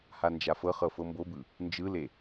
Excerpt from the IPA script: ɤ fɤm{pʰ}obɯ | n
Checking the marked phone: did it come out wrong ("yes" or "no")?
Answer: yes